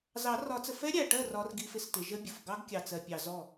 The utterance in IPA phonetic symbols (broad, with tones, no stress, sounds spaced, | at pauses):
z ɑ˨˩˦ r ɒ˨˩˦ t͡s ə˨ f ɛ˦˥ ɾʲ æ˨ ʈ ɜ˥˩ r ɒ˦˥ r ɡ i˦˥ f ɪ˥˩ s t ɪ˨˩˦ ʒ ə˦˥ bʲ ʊ˨ f ɡ ɑ˦˥ ɡ kʲ ɑ˨ t͡s ɜ˨ pʲ ɑ˨ z ɔ˥˩